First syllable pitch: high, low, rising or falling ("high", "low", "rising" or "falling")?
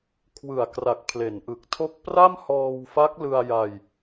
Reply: low